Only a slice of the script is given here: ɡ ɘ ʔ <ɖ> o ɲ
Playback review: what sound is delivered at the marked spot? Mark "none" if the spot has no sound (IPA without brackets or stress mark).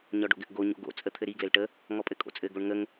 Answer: ɡ